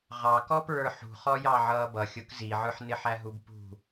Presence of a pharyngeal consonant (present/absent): present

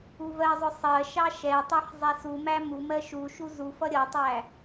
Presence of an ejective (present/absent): absent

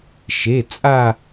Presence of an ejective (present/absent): present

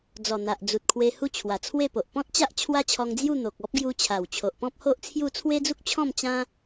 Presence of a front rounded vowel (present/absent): absent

